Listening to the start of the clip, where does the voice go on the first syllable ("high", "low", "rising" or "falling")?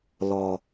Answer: low